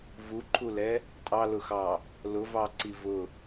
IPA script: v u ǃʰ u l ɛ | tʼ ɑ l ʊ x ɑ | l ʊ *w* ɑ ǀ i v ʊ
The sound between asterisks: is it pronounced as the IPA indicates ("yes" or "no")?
no